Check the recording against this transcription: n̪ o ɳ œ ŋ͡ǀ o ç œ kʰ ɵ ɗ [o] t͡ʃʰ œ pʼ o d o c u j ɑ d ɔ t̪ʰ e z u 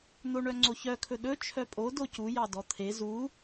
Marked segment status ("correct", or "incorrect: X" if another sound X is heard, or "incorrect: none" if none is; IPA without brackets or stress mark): incorrect: ɵ